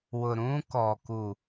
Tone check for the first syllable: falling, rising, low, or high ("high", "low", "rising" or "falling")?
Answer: low